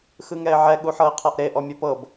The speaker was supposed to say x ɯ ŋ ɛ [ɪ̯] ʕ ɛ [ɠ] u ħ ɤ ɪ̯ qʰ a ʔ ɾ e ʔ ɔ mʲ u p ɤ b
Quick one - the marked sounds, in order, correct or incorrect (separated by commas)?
correct, correct